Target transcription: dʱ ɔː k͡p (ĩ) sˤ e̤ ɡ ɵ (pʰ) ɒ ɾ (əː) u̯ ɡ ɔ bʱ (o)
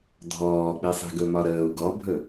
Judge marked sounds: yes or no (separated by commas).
no, no, yes, no